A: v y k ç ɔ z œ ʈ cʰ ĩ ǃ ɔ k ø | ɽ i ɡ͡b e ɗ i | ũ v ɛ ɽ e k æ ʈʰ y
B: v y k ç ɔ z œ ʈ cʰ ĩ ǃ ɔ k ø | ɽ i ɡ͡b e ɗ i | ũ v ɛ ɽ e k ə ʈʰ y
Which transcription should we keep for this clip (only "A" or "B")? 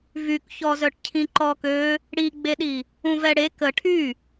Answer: B